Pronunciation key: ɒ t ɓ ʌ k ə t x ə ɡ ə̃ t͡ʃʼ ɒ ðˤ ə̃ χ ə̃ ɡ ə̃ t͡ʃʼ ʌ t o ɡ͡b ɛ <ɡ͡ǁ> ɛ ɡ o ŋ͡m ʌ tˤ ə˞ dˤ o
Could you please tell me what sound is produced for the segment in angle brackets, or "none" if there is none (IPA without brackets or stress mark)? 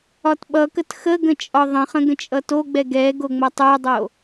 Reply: ɡ